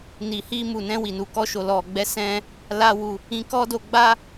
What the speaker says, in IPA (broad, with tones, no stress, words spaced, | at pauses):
ni˨hi˧mu˨nɛ̃˧ wi˨nu˨kɔ˧ʃo˨ lɔ˨ɡ͡bɛ˨˦sɛ̃˧ | la˦wu˧ | ĩ˧kɔ˦do˧ɡ͡ba˦